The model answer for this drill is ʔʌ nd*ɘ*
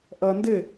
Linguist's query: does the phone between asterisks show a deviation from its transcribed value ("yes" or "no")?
no